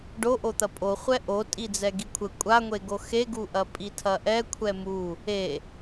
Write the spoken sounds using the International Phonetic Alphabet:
ɖoʔot̪ɐ pʼoχʷɛ ʔo tʼid͡zɛɡikʷʰɘ kʷʼaŋʷeɡo xeɡuʔɐ pʼitʰɐʔɛ kʷʰɛmu | e

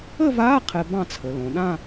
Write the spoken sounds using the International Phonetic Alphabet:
ə˥˧vaː˧˥˧ qʰɛ˧˥bɑ̃˥˧t͡sʰə˩˧lõ˩˧ ɗã˥˧

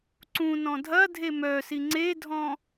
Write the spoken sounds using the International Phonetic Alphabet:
ǀũnɔ̃ dʱɐ dʱemœsi ŋ͡ǀedʱɔ̃

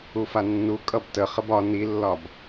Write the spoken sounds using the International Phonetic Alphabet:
ufanːu kʼʌbtə χəbɒ nilːɒb

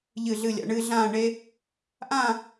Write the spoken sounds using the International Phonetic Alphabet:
ʎɨ˧˩ɮɨ˧˩lʲa̰˩˧ɳɨː˧ ɮãː˥˧ɳe˥ | ʔã˥˧

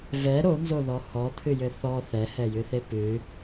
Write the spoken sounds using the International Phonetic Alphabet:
vɛ ɾonzoðɔ hɔt̪ʰɨjɘ θɔ θɛhɛjɨθe pɨ

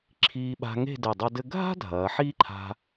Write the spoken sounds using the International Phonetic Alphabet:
ǁʰiː˧ɓa̤˧ ŋe̤˥˧de˧˩ dˤɐ˧dɘ˧ ɡʱa̤˥ dʱɐː˩˧ħiː˥ǃʰa̤˧

